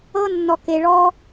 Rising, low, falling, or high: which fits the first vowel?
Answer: high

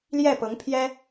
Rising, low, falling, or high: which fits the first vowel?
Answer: falling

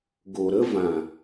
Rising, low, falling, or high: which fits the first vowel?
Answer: low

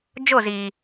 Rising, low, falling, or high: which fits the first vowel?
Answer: falling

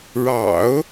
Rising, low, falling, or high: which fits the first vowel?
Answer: low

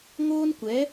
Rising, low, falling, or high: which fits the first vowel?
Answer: high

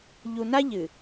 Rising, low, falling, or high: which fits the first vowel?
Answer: low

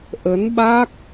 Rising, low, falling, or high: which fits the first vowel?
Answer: rising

